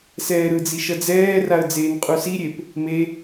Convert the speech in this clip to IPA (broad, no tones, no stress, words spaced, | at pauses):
sɛːɾɯd͡zi ʃʌd͡zɛːraə̯ d͡zeːnqʼusiɾʲep | me